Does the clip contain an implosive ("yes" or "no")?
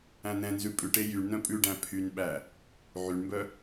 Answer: yes